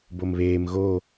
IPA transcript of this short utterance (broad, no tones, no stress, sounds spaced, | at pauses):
b o m β eː m ɣ o